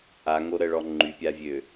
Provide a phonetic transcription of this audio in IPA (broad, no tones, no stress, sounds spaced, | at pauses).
ʔ a ŋ o ɾ ə ɭ ɔ ŋ͡ǃ y pʲ a vʲ ø